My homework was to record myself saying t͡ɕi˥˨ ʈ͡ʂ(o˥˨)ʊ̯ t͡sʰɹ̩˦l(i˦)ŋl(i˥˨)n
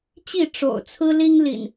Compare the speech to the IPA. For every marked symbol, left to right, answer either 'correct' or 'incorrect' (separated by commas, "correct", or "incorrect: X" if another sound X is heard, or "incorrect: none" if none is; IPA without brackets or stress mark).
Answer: incorrect: o̰˨˩, correct, incorrect: ḭ˨˩